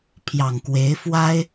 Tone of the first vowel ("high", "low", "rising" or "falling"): low